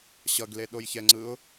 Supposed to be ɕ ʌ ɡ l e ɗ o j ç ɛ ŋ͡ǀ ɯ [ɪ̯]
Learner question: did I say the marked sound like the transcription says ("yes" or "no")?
no